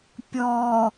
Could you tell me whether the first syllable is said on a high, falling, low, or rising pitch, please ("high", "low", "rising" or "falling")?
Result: low